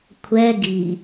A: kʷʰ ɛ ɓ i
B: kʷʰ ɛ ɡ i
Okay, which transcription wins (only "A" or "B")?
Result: B